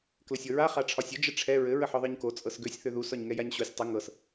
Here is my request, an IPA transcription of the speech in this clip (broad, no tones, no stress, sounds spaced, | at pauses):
k l ə sʲ ɤ ɹ a χ a ʈ͡ʂʰ ɒ sʲ ə d͡ʒ ə ʈ͡ʂʰ ɛ ɹ ɘ ɹ ə ħ ɒ ðˤ ɤ ɲ k o t͡sʼ ɤ s ɡ ø sʲ θ ø ð u s ɒ ɲ ŋ ɛ j a ɲ ɕ o sʲ tˤ ə ŋ ɤ s